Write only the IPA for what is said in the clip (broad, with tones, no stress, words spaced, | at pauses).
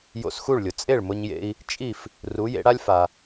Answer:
jo̰˧sxu˥˩ɭlʲʊ˩ t͡sʼe˥˩ɭmʊ˧ɲjḛ˧i̯ | t͡ʃʼi˥˩f | ru˩˥jḛ˩˥ɽa˥lʲfa˩